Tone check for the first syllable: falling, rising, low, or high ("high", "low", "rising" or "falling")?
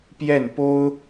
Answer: falling